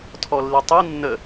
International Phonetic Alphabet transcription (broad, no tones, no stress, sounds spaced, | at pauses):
tʰ ɔ lː i tˤ i nː ə